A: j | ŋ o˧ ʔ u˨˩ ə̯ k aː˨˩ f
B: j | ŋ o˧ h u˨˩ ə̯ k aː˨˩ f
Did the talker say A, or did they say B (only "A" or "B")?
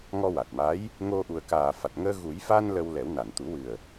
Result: A